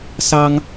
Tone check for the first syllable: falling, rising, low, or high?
high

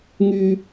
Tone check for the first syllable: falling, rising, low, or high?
high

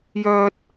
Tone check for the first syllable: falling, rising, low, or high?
high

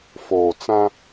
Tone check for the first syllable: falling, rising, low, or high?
low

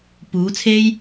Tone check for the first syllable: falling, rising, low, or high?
rising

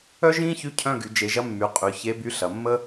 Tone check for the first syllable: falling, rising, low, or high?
high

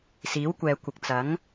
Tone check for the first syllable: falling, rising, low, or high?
rising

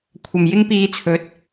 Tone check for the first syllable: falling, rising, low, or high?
low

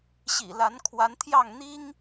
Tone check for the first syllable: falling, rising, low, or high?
low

